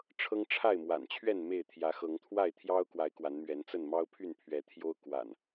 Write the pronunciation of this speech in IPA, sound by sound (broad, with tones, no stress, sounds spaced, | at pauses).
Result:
ʈ͡ʂʰ ɤ˦ ŋ ʈ͡ʂʰ a˥˨ ɪ̯ m w a̰˨˩ n t͡ɕʰ ɥ ɛ˥˨ n m e˥˨ ɪ̯ t̪ʰ j ä˨˦ x ɤ˨˦ ŋ t̪ʰ w a˥˨ ɪ̯ t̪ʰ j ɑ˦ ʊ̯ k w a˨˦ ɪ̯ k w a˨˦ n m ɥ ɛ˨˦ n t͡s ə˥˨ n m ɑ˦ ʊ̯ pʰ y˥˨ n pʰ ɥ ɛ˨˦ t̪ʰ j o˦ ʊ̯ k w a̰˨˩ n